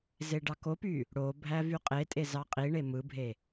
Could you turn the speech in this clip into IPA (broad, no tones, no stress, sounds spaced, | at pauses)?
z e ɖ ɑ k o p y | ɽ o bʱ æ v y qʼ e tʼ e z ɑ qʼ i ɳ e m ɯ bʱ e